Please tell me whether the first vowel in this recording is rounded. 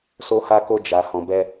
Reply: yes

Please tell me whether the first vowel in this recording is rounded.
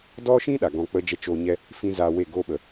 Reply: yes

